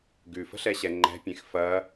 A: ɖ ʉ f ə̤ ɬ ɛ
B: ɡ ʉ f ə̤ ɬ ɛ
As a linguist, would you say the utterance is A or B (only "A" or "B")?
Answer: B